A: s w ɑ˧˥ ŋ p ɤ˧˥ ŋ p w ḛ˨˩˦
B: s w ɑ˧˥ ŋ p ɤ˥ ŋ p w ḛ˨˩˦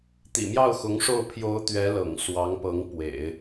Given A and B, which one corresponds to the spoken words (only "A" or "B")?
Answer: A